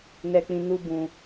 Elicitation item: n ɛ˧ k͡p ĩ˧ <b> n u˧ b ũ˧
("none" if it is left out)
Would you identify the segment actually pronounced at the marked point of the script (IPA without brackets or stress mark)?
none